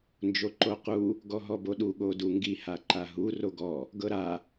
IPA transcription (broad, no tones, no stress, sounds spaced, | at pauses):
n d͡ʒ o ǃ o q u | ɡ ɔ ɦ ɔ b o ɗ u ɠ o d u ŋ ɡ i h a ǃ a ɦ u r o ɡ ɔ | ɡ ɤ ɾ a